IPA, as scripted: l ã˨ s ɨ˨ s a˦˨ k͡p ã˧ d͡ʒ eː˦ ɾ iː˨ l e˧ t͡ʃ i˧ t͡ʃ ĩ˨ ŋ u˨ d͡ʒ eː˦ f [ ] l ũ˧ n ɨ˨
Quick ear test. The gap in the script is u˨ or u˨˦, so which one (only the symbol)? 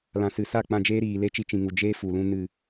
u˨